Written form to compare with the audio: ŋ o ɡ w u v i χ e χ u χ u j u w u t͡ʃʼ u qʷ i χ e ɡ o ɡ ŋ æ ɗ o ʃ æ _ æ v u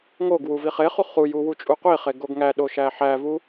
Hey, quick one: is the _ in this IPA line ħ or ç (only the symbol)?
ħ